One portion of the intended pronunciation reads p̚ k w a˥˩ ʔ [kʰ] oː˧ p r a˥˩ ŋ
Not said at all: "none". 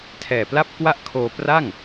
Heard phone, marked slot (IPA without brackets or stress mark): kʰ